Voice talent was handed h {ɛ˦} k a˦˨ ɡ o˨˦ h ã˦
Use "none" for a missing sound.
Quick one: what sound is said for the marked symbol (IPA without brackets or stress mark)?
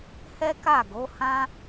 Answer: ɛ˦